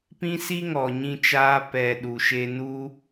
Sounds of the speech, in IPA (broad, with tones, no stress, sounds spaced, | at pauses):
p ĩ˦ s i˦ ŋ ɔ˨ ɲ ĩ˧ t͡ʃ aː˧ p ɛ˨ ɗ u˨ ʃ e˧ n u˦